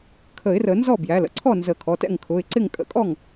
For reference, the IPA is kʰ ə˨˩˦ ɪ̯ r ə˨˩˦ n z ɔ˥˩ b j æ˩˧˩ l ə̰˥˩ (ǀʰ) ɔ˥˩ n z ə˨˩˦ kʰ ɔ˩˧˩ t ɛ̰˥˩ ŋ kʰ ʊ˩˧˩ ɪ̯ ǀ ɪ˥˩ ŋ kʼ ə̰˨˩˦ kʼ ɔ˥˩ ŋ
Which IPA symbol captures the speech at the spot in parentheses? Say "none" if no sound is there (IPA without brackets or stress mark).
ǀʰ